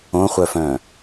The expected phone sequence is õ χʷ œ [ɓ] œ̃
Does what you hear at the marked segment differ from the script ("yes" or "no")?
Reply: yes